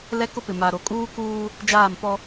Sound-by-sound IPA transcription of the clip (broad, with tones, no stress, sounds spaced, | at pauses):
l ɛ˦ k ʊ˦ p ɪ˨ m a˨ ɾ o˨ kʼ uː˦ k uː˦ | d͡ʒ aː˦˨ m p ɔ˦